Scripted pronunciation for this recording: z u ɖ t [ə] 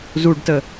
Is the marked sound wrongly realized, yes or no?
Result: no